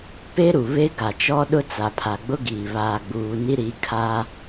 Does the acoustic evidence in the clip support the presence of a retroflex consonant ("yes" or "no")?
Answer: no